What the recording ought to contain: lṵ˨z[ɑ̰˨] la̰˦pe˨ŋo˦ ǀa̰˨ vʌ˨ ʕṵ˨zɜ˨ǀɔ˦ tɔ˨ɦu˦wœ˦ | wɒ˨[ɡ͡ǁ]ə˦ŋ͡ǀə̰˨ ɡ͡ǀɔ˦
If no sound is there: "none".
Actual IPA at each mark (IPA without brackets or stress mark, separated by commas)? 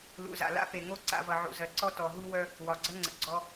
a̰˨, ɡ͡ǀ